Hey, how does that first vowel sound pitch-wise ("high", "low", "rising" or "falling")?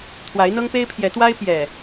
rising